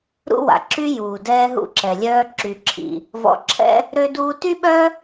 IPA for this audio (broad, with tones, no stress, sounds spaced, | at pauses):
ɾ ṵ˥ w a̰˩ ǁ y˥ j uː˩ d ɛː˧ ɦ ṵ˧ ǁ ɛ˩ lʲ œː˧ ǁ y˩ ǁʰ ḭ˩ | v ɔ̰˧ ǁʰ ɛ̰˥ | ɾ ø˧ d uː˧ t y˥ ɓ œ˥